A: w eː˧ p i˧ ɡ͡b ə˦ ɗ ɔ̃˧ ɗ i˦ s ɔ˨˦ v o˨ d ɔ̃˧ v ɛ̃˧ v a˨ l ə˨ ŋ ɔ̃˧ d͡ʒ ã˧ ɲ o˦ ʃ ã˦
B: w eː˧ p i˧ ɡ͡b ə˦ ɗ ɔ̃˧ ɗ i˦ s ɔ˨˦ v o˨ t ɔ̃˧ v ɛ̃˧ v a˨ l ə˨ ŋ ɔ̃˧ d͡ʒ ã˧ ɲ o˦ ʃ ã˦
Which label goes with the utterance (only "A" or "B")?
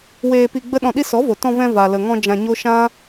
B